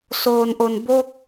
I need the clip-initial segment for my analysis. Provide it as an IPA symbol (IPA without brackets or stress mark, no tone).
s